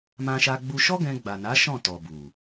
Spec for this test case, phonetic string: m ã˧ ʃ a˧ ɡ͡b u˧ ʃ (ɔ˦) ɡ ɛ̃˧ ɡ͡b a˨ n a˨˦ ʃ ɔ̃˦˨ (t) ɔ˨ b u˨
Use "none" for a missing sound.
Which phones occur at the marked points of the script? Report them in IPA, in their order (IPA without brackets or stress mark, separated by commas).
ɔ˦, t